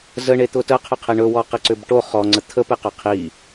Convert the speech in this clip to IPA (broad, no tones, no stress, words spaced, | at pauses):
zəɳet̪ʊ təqʰʏqʰe ɳɵwɔqiǀʏb ʈo χɔŋ͡ǀə t̪ʰəpeqʏ qʰi